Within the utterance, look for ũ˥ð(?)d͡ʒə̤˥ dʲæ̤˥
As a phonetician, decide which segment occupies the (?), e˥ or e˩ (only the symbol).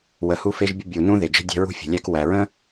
e˩